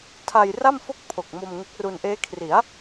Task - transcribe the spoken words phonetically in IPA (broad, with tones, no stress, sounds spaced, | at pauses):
tʰ a˧ j r a˥˩ m f o˥˩ k̚ pʰ o˨˩ k̚ m o˧ m ŋ e˦˥ k̚ r u˧ n ʔ eː˦˥ kʰ r i˩˦ a̯